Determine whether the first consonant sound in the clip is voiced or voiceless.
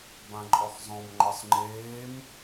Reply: voiced